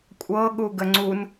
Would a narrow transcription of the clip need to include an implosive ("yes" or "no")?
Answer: yes